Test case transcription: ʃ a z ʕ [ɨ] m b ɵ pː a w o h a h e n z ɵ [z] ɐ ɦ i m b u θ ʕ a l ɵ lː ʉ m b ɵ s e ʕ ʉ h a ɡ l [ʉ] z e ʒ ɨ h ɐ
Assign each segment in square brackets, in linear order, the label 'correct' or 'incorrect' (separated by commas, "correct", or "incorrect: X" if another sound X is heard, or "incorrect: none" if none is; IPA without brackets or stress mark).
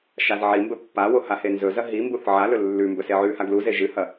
incorrect: i, correct, incorrect: u